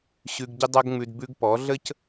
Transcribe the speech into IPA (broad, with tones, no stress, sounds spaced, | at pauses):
ɕ ʉ˧ ɡ ɟ ɪ˦ dˤ ɐ˦ ɡ ŋ͡m ʉ˧ d b ʉ˧ ɡ p ɔ˨˦ ɮ ə˦ c